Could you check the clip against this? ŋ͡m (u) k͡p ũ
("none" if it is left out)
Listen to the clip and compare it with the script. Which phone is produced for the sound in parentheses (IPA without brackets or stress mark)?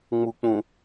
u